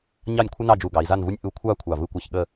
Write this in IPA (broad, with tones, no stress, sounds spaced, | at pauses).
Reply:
ɲ ɑ˥˧ nʲ kʷʰ ə˥ n ɑ˥˧ d͡ʒ u˧˩ ɡ ɑ˩˧ i̯ z a˥˧ n v u˥ nʲ ʔ u˧ kʷʰ ɑ˥˧ kʷʰ ɑ˧˩ v ɯ˥˧ kʷ ɑ˥˧ ç ɠ ə˥˧